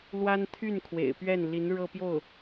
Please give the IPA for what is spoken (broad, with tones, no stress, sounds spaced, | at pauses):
l w a˥ n t̪ʰ y˥˩ n kʰ w ḛ˨˩ ɪ̯ p ɥ ɛ˥˩ n l i˧˥ n ɻ ɤ˥˧ p j o˥˩ ʊ̯